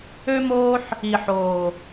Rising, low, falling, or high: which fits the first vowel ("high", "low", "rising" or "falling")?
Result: high